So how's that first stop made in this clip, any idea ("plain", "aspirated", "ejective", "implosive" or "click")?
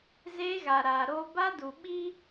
plain